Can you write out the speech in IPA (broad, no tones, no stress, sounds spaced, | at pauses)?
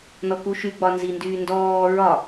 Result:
n ɔ k u ʃ y ɡ͡b ɒ n z i n d yː n d ɔː ɹ ɒ